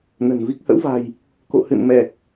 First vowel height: mid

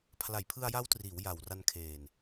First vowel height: low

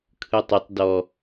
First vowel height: high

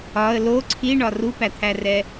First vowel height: low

